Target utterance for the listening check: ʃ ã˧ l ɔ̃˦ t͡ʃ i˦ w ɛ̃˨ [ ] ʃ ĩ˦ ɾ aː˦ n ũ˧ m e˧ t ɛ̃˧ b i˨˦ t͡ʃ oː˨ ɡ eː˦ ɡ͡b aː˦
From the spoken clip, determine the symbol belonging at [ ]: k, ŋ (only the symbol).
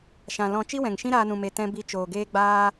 ŋ